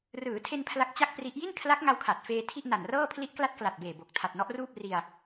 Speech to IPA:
rɯː˩˦tʰe˧n pʰla˦˥k̚ t͡ɕa˥˩k̚pri˦˥ʔ ji˥˩nkʰla˦˥k̚ŋa˧w kʰa˨˩t̚feː˧ tʰi˥˩ʔna˨˩nrɤː˥˩ pʰli˦˥ʔkla˦˥t̚kla˨˩t̚beː˨˩ bo˨˩k̚ tʰa˨˩t̚nɔ˦˥ʔruː˥˩p̚ ri˧a̯

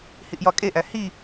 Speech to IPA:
hiʔjɒkʼeʔæ hi

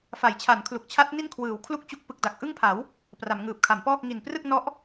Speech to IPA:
fa˩˦jt͡ɕʰa˩˦nkʰlu˨˩k̚t͡ɕʰa˦˥t̚ ni˥˩nkʰwɯː˩˦w kʰlu˥˩k̚t͡ɕu˦˥k̚ pɯ˨˩k̚da˨˩k̚ʔɯ˥˩ŋpʰa˩˦w | pra˩˦mŋɯː˨˩p̚kʰa˩˦mpɔː˥˩k̚ ŋi˨˩nprɯ˥˩k̚nɔ˦˥ʔ

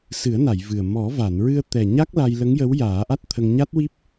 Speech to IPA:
sɨ˨˩˦ə̯na˨˩˨j vɨ˨˩ə̯ mɔ˨˩˦va˨˩˨nɹɨ˧ə̯ t̪ɛ˨˩ɲa˦˥k̚ la˧j lə˧˥ŋjə˧˥w jaː˨˩˦ʔa˦˥t̚ t̪ʰə˧ŋ ɲa˦˥t̚wi˦˥p̚

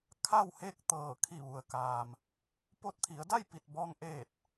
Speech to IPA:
kʰa˥˨wheː˥˨k̚ t̪ɤː˧˩ kʰi˧˩ʋu˩ə̯kaː˩m | po˧t̚t̪ʰi˩˧ə̯da˥˨j pi˧˩t̚bɔː˧ŋʔeː˧˩t̚

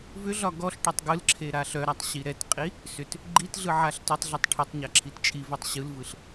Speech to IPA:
vʏɮɒ ɡɔɬ ʈœtˤɡɯlǁʰe ɾaɬœɾatˤ ɕiɾɛtqʼi | sʏt | ɡ͡ǃitɮɯ ʕaɬtʏtˤɮetˤ ʈʰʏtˤɲa ǁʰitt͡ʃʼivœtˤ ɕɯlvɯɬ

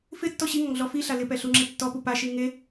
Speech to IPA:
fɪtːɔ ɕiŋɔŋ ɮɔfiɬa lɪpɛ ɬuŋ͡ǁetːɔpu paʃi ŋe

